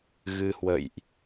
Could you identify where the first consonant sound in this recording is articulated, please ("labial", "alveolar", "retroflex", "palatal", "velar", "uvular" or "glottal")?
velar